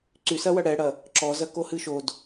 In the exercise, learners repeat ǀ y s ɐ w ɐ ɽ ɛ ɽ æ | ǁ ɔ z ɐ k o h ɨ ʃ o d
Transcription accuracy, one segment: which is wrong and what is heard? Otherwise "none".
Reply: æ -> ɐ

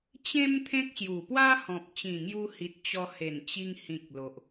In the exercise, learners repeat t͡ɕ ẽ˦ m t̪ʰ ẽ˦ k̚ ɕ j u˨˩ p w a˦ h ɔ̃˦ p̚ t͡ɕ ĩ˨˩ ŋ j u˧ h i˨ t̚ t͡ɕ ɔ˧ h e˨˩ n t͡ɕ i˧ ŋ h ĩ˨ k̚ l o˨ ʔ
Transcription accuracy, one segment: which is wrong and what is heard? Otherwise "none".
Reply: ɔ̃˦ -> ɔ̃˨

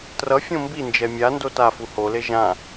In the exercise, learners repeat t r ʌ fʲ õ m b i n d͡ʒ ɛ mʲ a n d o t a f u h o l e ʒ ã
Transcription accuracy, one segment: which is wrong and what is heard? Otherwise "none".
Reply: none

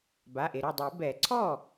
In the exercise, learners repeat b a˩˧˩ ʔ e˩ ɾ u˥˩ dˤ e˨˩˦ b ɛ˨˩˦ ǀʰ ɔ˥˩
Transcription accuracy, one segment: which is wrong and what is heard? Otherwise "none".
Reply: none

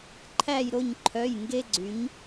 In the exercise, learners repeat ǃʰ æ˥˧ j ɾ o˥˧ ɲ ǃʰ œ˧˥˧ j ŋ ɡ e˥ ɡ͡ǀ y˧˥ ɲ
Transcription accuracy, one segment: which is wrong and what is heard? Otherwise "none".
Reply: none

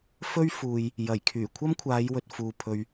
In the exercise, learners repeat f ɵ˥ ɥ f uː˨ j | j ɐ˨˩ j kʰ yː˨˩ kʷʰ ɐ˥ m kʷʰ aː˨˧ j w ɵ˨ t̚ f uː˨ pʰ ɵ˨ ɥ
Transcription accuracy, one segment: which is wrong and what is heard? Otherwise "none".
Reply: none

